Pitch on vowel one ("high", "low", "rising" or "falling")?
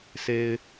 high